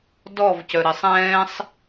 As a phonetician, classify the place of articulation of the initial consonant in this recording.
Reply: alveolar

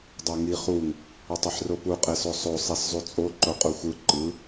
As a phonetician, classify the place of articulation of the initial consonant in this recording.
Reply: alveolar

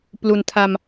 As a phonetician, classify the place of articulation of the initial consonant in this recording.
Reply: labial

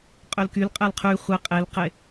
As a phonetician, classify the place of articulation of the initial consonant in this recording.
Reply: uvular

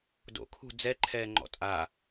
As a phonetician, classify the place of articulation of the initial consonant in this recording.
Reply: alveolar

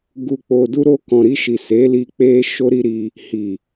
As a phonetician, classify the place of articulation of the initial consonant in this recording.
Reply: velar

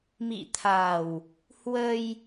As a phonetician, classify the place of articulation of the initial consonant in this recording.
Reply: labial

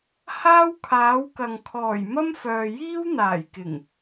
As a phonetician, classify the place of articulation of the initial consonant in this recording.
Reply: glottal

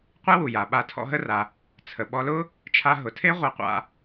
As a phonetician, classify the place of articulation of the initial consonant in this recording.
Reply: uvular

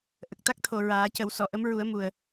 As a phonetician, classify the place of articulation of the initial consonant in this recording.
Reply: glottal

